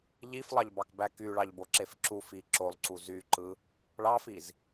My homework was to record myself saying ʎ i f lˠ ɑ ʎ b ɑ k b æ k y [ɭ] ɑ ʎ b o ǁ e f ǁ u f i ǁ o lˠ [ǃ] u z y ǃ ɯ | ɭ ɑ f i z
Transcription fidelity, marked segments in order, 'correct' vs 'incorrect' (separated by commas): correct, incorrect